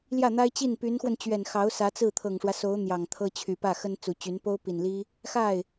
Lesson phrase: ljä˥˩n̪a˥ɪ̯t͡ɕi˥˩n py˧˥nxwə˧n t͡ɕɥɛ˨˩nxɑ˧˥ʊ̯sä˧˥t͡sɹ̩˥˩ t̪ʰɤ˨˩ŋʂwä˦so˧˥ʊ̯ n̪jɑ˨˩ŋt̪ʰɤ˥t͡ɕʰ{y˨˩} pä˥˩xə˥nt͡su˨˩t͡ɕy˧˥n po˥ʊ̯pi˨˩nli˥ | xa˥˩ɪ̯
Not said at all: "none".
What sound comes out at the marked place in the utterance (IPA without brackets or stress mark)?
y˨˩